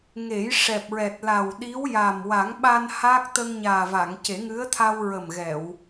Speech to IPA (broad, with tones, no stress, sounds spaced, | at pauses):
ŋ e˨˩˦ j ʂ ɛ˨˩ p̚ ɹ ɛ˨˩ t̚ l a˨˩ w ɗ i˧˥ w j a˨˩ m w a˨˩˦ ŋ ɓ a˧ n h aː˦˥ k̚ t̪ ə˧ ŋ ɲ aː˨˩ v a˨˩˨ ŋ c e˨˩˦ ŋ ɨ˧˥ ə̯ t̪ʰ a˧ w ɹ ə˨˩ m ɣ ɛ˨˩˨ w